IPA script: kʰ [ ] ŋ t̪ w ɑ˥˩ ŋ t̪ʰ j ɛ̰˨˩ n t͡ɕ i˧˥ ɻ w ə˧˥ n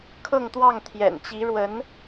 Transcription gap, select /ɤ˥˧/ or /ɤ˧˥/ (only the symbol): ɤ˥˧